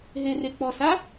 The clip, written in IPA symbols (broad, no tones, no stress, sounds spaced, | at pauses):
ɦ e r e k͡p ɔ s a